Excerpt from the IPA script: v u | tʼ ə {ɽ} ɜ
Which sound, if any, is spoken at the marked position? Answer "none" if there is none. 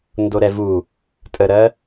ɾ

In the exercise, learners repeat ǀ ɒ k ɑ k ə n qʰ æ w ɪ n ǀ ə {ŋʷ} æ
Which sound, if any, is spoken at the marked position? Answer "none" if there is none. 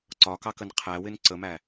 m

